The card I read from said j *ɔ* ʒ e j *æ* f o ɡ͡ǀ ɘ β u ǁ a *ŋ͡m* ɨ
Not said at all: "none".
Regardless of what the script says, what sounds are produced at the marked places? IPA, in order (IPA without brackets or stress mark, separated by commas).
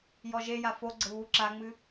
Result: ɔ, a, ŋ͡m